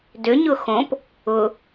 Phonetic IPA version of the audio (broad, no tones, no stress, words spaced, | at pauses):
dʏɲʊ xõp | ʊ